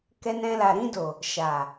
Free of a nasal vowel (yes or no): no